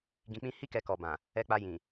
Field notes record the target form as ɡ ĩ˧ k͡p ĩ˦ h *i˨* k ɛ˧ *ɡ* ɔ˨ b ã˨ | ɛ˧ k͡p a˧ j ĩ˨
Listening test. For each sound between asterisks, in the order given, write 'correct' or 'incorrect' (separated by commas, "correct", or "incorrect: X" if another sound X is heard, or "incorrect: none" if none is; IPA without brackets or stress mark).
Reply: incorrect: i˦, incorrect: k